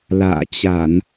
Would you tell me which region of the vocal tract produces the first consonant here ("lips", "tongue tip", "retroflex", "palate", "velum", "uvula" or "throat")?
tongue tip